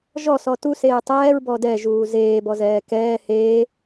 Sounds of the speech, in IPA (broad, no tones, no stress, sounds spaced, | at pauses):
ʒ ɔ s ɔ t u s eː tˤ ɛː ɹ b ɔ d ɛ ʒ uː z eː b ɔ z ɛː k ɛː h eː